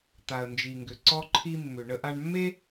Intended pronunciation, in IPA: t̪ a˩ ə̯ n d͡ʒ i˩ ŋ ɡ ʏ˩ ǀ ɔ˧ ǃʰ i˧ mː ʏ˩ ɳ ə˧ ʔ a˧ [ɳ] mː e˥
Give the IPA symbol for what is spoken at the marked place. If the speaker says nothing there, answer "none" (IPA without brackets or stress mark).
ɳ